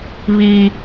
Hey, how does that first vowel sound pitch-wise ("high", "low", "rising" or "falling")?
low